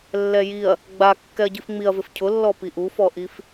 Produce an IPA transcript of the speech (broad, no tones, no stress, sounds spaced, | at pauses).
lː ɛ j i ɐ̯ | ɡ͡b a kː ɛ ɐ̯ ɟ i f ŋ͡m i ɐ̯ v ɪ f cʰ ʊ lː ɔ p i ʔ u f ɔ ʔ i f